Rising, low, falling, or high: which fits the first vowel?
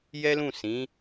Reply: high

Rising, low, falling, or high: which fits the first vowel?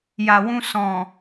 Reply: low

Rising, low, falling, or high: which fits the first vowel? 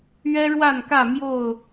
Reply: high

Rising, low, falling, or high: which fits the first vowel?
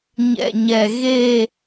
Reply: low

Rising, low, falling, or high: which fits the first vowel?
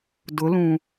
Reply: rising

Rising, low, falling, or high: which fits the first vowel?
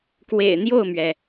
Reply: low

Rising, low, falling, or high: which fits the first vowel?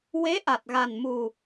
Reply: rising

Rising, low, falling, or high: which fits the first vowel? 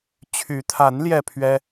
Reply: rising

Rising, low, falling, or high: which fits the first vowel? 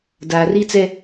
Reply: low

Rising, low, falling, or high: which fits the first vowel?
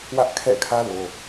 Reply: high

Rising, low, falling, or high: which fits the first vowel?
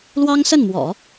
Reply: high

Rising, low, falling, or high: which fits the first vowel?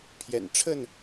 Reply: low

